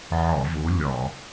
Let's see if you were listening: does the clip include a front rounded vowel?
no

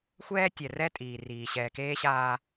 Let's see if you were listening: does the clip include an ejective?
yes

